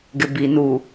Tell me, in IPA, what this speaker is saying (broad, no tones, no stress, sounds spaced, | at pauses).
ɡ ɪ b i n u